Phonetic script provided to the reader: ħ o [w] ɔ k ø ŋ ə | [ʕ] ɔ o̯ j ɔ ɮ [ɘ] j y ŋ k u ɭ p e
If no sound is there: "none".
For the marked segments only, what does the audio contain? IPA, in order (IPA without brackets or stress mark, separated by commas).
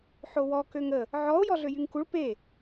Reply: w, ʕ, ø